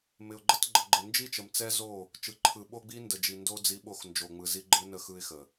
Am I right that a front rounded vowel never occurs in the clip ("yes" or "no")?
yes